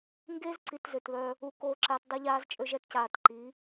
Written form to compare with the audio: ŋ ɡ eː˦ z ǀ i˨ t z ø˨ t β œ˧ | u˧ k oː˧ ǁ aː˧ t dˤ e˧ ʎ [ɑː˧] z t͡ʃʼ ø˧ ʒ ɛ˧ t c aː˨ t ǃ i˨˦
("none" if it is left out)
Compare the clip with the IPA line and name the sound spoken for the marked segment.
aː˧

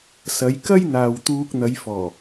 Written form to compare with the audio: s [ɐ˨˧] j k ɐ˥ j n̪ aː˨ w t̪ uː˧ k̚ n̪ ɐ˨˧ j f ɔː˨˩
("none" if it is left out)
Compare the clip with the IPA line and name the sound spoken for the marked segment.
ɐ˨˧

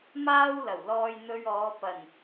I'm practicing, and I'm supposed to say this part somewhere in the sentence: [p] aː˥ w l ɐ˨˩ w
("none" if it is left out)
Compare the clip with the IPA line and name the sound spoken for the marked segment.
m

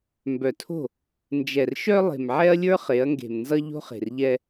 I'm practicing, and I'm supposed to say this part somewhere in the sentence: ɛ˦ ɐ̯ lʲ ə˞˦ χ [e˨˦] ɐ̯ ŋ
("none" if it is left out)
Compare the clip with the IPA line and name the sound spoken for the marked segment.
e˨˦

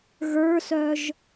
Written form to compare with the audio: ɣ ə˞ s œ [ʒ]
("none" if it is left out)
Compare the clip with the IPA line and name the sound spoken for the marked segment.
ʒ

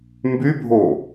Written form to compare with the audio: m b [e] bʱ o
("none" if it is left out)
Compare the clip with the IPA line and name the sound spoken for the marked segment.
y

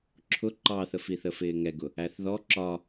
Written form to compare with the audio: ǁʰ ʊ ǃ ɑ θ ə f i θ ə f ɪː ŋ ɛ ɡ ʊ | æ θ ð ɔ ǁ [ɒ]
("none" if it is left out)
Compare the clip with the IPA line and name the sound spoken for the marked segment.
ɒ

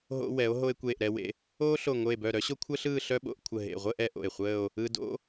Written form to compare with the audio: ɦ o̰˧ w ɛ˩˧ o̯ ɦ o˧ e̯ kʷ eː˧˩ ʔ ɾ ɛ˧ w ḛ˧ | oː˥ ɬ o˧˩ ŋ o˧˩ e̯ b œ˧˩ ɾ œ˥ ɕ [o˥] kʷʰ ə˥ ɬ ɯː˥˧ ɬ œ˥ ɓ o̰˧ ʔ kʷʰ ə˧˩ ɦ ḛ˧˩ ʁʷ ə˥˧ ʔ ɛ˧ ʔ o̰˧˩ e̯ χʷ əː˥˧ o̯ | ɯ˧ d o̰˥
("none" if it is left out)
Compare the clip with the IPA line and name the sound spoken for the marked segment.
o˥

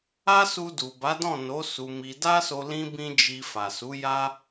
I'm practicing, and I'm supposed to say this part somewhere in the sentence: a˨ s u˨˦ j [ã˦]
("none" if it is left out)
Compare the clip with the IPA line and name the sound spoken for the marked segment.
a˦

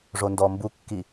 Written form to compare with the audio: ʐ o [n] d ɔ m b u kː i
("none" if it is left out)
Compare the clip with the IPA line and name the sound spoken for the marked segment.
n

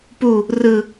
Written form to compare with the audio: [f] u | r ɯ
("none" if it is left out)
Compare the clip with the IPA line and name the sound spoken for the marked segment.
p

